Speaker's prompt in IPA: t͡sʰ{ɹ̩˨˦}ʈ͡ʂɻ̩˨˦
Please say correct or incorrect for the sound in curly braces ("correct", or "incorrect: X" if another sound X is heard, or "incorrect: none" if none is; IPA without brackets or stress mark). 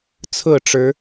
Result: incorrect: ɹ̩˥˨